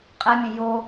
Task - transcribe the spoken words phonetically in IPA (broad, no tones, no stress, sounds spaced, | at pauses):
qʼ ɛ mʲ ẽ j o